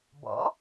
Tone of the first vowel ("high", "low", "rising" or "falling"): rising